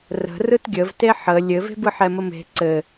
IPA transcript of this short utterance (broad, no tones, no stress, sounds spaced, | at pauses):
r ə̤ r ɯ t ɡʲ ə v t e ħ ə lʲ ɘ v e̤ b ɯ ħ ɛ m ə m e̤ ǀ ɘ